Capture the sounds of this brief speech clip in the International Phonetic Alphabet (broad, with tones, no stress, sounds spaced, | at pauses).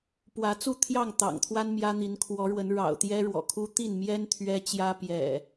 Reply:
p w ä˨˦ t͡s u˥˨ t̪ʰ j ɑ˥˨ ŋ t̪ ɑ̰˨˩ ŋ t̪ʰ w a˦ n m j ä˦ n̪ i˨˦ n kʰ w ɔ˨˦ ɻ w ə˨˦ n ɻ ɑ̰˨˩ ʊ̯ t̪ j ɛ˦ ɻ w ɔ̰˨˩ kʰ u˦ t̪ i˥˨ n m j ɛ˦ n t̪ʰ ɥ ɛ˦ t͡ɕ j ä˦ p j ɛ̰˨˩